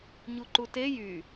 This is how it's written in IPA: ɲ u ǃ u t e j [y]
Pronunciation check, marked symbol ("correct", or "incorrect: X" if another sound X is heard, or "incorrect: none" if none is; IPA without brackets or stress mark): correct